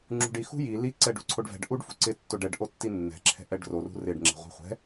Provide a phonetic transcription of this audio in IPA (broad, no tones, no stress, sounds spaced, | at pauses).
ŋ͡ǁ ṳ ɖ i x ṳ j i l i ǀ ɛ ɖ ṳ ǀʰ o ɖ v ɛ̤ ɖ ʔ u ɖ f ṳ ǀ ɪ tː o ɖ ɛ ɖ ʔ o tː i nː ɛ̤ ǁʰ ɛ̤ ʔ ɛ ɖ r o r ṳ r ɪ ɖ ŋ͡ǁ ɛ̤ ʁʷ ɛ̤ χʷ ɛ̤